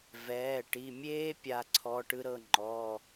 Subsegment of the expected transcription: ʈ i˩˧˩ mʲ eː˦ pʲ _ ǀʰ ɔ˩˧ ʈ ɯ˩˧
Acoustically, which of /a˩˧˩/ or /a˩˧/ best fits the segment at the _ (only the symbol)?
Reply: a˩˧